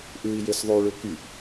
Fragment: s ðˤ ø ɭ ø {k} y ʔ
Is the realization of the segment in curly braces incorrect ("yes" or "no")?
no